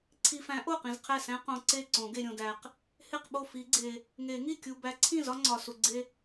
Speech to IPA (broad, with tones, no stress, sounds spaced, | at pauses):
ǀʰ i˨ f æ̃˨˥ ʔ o˥˩ q ĩ˨ z qʰ æ˥˩ s æ̃˦ q õ˨ ǀ e˥˩ ǀ õ˨˩˦ ɡ e˨ ɾʲ õ˨ d æ˨ q | h e˥˩ q ɓ o˥˩ f i˨˩˦ ɡ͡ǀ e˨ | ŋ e˨˩˦ ŋ i˥˩ kʲ u˨ b æ˨˥ ǀʰ ĩ˥˩ z ɒ˦ ŋ͡ǀ ɒ˨ s u˨ ɡ͡ǀ e˦